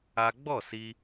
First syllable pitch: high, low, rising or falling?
high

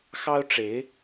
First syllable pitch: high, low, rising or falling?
high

